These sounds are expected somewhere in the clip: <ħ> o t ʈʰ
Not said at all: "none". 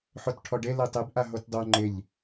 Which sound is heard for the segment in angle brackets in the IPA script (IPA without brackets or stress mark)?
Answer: ħ